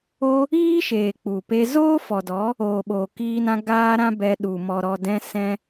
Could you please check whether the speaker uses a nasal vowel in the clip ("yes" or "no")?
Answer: yes